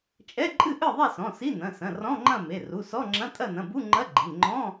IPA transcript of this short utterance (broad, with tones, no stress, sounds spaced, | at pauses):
t͡ʃʼ ɛ˧˥˧ ǃʼ ɨ˥˨ ʔ ɨ˥˨ ðˤ e˥˨ s ɔ̃˩˧˩ s i˧˥˧ n ɐ̃˩˧˩ s ɐ̃˩˧˩ r ɔ̃˧˥˧ ŋ͡ǃ ɐ̃˥˨ m e˩˧˩ r u˩˧˩ s ɔ˧˥˧ ŋ͡ǁ ɐ̃˧˥˧ tʼ ɐ˥˨ n ɐ̃˩˧˩ b u˧˥˧ ŋ͡ǃ ɐ˧˥˧ ɡ͡ǃ i˩˧˩ ŋ͡ǃ ɔ̃˧˥˧